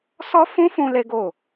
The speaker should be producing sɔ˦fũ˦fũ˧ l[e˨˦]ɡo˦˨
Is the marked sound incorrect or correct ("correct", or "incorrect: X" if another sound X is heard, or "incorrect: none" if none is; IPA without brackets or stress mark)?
incorrect: e˦